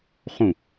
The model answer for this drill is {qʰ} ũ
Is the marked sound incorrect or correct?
incorrect